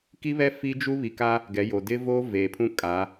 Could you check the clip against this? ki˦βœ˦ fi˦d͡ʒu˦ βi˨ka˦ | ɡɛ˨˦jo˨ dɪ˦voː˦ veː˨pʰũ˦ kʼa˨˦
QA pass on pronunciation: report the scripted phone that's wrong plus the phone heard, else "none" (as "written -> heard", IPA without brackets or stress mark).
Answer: œ˦ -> ɛ˦